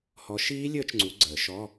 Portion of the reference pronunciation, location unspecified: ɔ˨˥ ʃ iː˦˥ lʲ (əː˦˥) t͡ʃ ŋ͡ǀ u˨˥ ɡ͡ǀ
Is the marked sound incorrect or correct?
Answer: correct